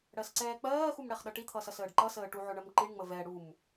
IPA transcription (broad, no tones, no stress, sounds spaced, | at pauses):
ɽ ɜ s ǀ ɛː k͡p ɜː x u m ɽ ɛ χ ɗ ʌ ʈ i t̪ʰ ʌ s ʌ s əː ɖ ǃ ʌ s əː ʈ u ʕ ʊ ɳ ɜ m ǃ i ɳ ŋ͡m ə v ɛ ɽ u m